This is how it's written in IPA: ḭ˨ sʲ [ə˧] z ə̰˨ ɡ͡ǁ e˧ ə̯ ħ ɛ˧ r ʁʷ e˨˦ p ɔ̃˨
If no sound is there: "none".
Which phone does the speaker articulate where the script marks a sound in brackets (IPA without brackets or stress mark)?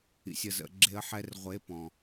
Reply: ə˨